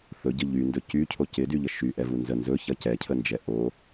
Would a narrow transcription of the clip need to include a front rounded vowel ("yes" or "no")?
yes